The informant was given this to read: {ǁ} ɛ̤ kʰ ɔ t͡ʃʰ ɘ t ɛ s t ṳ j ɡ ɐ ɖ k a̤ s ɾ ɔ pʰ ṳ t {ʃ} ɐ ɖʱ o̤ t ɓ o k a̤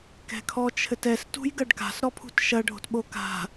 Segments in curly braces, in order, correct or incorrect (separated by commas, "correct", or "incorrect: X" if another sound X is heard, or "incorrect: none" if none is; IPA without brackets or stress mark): incorrect: k, correct